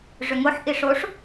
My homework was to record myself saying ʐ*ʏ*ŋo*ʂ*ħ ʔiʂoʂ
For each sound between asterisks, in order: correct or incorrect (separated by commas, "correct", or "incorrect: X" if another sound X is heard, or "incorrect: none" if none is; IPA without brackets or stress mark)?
correct, incorrect: none